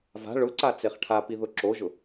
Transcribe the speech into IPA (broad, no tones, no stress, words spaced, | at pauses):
va̤ ɭʊǀa t͡seχʈʰapi ðʊǁoʒʊ